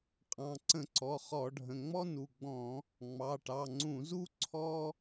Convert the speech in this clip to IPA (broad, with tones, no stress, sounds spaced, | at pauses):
qʼ ɑ̃˩˧˩ ǀ ə̃˧˩˧ ǀ ɔ˩˧˩ χ ɔ˧˩˧ ɖʱ ə̃˩˧˩ ŋ͡m ɔ˥ n u˩˧˩ ɡ͡b ɔ̃˧˩˧ | ŋ͡m ɑ˩˧˩ ʈ ɑ˩˧˩ ŋ͡ǀ ũ˧˩˧ z u˥ ǀʰ ɔ˥